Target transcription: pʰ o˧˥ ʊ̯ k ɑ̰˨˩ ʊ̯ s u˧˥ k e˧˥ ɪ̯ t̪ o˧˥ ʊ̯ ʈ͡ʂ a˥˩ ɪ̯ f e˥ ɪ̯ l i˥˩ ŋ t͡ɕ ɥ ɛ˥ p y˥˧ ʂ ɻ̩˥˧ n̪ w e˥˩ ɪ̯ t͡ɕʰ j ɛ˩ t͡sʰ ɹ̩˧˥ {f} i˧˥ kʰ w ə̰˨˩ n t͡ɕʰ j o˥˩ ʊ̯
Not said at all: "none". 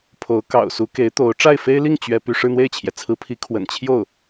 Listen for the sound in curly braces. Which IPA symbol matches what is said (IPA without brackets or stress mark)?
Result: pʰ